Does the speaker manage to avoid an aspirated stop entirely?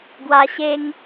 yes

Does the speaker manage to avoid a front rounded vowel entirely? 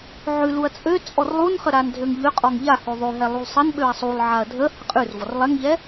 no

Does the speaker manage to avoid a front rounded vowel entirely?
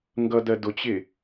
yes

